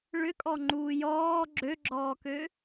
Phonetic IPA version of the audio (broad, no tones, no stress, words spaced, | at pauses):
ɭʏkʼɔŋ͡ǃuː jɔː ɡ͡ǁøɡ͡ǁɔːkø